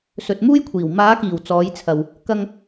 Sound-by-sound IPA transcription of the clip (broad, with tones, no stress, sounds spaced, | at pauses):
s ɵ˨ t̚ m uː˥ j kʷʰ iː˨˩ w m aː˨˧ k iː˨˩ w t͡s ɔː˨˧ j t͡sʰ ɐ˨ w | k ɐ˧ ŋ